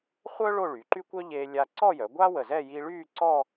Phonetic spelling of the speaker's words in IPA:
χʷ œ˥ ɭ o˥˧ ɭ y˩˧ ǃ y˥ kʷ œ˥ ʎ e˧ lʲ a˧ ǀ ɔ˥˧ j œ˩˧ ɡʷ a˥ w ə˧˩ z ɛ˥˧ j i˧ ɭ yː˥˧ ǀ ɔ˥˧

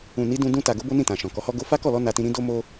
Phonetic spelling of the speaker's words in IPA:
ũ˨ n i˨˦ d ũ˧ d ũ˧ t a˨ ɡ o˧ b o˦ n ĩ˦˨ t ã˨ ʃ ɔ̃˨ k ɔ˨˦ h ɔ˦ ɡ o˧ f a˦ k ɔ˦˨ l ɔ˧ n a˧ t ĩ˧ ɾ ĩ˧ d o˦ m o˦

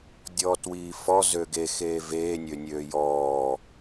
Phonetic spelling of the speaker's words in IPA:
dʲ ɔː t w iː f ɔ z ø ɡ e x eː v eː nʲ ø nʲ øː j ɔː

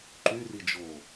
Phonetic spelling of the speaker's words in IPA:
ǃ y r i d͡ʒ o

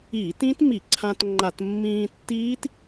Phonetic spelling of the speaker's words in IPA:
iː˧˩˧ t ĩ˦˥ t m i˧˩˧ ǀʰ ã˧ t ŋ͡ǃ a˧˩˧ t mː ĩː˧ tː iː˦˥ t

